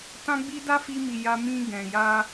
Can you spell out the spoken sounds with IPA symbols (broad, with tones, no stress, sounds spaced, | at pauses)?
t ã˦ ɡ͡b i˦ d a˦ f i˧ m i˨ j a˧ m ĩ˧ ɡ ɛ̃˨ j a˧